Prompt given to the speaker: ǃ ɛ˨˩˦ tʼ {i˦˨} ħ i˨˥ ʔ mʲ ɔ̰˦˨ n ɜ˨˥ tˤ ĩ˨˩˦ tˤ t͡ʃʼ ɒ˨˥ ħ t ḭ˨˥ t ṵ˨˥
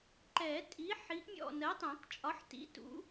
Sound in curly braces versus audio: incorrect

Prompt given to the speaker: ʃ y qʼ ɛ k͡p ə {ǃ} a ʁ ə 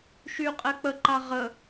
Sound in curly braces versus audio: correct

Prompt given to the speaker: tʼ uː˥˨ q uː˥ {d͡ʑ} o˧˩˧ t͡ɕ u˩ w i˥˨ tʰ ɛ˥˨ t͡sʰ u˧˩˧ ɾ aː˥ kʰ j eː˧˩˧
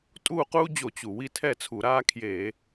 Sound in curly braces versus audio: correct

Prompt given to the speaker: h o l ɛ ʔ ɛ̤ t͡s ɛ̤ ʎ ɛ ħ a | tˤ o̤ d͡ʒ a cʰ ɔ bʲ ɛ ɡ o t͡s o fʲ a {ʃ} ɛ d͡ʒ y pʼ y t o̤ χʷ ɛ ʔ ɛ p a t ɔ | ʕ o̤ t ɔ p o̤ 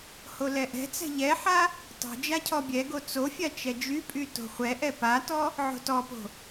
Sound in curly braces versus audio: incorrect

